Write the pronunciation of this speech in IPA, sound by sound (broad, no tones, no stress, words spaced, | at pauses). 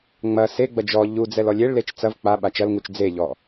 ŋ͡mɐ seɡ͡bɐ d͡ʒɔ ʎud͡zɛl ɔlʲeɭlet͡ʃ t͡sɐv k͡pa ɓat͡ʃɐlŋut͡ʃ d͡zeʎɔ